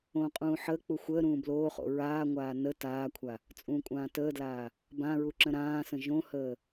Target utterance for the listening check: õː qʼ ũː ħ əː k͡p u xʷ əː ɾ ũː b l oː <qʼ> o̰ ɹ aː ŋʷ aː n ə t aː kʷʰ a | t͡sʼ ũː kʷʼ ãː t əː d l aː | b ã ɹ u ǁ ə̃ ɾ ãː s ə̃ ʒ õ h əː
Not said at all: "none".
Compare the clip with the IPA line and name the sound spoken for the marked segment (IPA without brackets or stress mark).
χ